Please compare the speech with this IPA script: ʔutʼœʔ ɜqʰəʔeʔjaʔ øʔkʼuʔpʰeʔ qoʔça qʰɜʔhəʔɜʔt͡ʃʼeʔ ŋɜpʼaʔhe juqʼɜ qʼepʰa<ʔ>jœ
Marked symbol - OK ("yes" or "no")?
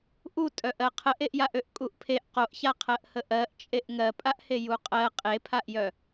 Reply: yes